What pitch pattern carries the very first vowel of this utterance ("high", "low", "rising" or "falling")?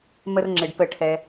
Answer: high